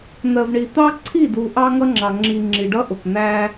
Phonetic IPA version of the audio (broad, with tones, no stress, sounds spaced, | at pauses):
n̪ ɜ˨ v ɳ i˨ t̪ ɑ˦ ǀʰ i˦˨ d u˨ ʔ ɑ˦ ŋ ʌ˦ ŋ͡ǁ ɑ˨ ŋ͡ǁ i˨ ŋ͡ǁ i˨ ɖ ʌ˦ ʔ ʊ˨ k n̪ æ˦